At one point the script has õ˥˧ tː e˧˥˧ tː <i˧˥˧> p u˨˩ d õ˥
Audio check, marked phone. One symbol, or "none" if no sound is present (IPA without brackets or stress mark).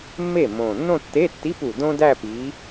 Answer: i˧˥˧